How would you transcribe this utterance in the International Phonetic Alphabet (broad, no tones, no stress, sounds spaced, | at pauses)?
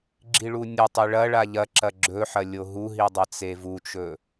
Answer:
ɡ͡ǁ i ɭ u nʲ o tˤ e ɭ ɐ ɭ a ʎ ɐ ǁ ɐ ɡ͡ǁ ɵ ħ ɐ lʲ o ɦ u ɦ i dˤ ɐ t͡s e v u t͡ʃ ɵ